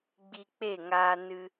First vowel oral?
yes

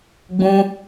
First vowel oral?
no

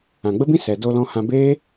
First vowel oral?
no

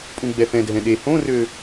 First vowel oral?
no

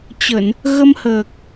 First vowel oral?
yes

